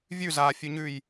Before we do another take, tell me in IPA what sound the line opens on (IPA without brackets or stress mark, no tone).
vʲ